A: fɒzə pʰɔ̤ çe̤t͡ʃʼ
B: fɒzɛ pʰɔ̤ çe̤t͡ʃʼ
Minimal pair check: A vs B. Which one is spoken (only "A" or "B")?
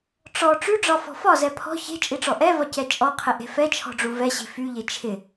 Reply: B